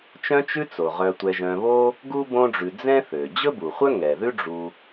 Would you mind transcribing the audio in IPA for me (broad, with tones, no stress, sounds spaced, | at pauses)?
t͡ʃ œ̃˦ t͡ʃ ʉ˦ t͡s o˩ ʁ œ˨ tʷ ɛ˨ ʒ œ̃˨ β o˥ | ɡ u˥ b õ˦ ɖ͡ʐ ʉ˨ d͡z ɛ̃˥ θ ø˩ d͡ʑ ɵ˥ b u˩ χʷ œ˥ ŋ ɛ˩ ð ʉ˥ ɖ͡ʐ u˨